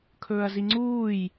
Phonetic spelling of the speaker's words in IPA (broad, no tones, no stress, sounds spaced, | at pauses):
kʰ ɵː ɐ̯ z i ŋ͡ǀ uː j